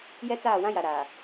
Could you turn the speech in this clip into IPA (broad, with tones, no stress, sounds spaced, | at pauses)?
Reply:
j ɛ˦ t͡s aː˦˨ w ã˦ j a˨ ɾ aː˨